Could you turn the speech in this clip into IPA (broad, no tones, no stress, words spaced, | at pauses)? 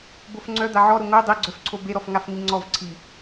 bofŋ͡ǀœ d̪aʕɔɾʊ ŋo dˤeɡ͡ǀœfǀʰo beɾɔfŋaf ŋiŋ͡ǀɔvǀʰi